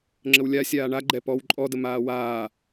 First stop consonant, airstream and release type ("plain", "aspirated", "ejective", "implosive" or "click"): click